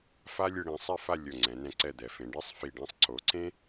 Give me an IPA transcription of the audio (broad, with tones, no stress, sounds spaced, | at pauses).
f a˥ lʲ ɯ˧ ɽ ĩ˩˧ sˤ ɛ˥˧ f a˥˧ lʲ o˧˩ ŋ͡ǀ ɛ̃˩˧ n ɛ̃˧ ǀ ɛ˧˩ d̪ ɛ˩˧ f ẽ˩˧ ɖ e˥˧ sˤ f i˧˩ ɖ ẽ˥˧ sˤ ǀ o˩˧ ǀ ẽ˥